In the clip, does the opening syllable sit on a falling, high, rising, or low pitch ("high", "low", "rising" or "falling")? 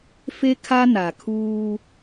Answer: high